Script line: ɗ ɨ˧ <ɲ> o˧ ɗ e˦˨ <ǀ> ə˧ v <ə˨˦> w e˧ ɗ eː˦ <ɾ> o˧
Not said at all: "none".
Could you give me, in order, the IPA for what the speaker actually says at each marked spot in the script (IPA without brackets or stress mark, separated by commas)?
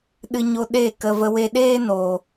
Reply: ɲ, k, ə˧, n